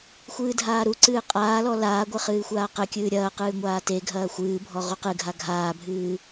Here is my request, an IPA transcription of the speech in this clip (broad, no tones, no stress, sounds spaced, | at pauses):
xʷ ɨː dʱ aː ɾ u ǀ ɨː qʼ aː l ɔ l aː ɡʷ ɘ χ ɨː xʷ aː q ɘ kʲ ɨː ɾʲ ɐː q ɨː ŋʷ aː t e ɡʱ ɐː xʷ ɨː bʱ ɔ ʁ u q ɨ ɡʱ a ɡʱ aː bʱ ɨː